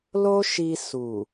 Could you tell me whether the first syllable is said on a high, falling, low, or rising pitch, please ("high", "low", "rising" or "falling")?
high